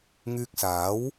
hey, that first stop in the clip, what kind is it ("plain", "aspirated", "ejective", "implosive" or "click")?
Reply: plain